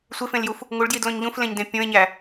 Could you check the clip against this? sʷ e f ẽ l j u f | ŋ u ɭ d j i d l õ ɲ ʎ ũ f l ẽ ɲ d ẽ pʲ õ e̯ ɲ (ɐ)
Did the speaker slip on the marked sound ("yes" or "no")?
yes